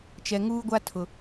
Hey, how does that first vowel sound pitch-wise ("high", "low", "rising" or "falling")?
low